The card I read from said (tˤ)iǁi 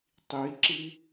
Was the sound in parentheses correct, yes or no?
yes